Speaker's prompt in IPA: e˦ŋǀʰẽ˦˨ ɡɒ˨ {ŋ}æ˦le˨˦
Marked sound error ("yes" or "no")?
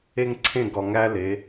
no